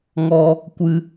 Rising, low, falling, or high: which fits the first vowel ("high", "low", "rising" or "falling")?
high